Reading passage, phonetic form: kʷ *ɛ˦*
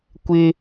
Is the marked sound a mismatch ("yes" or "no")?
yes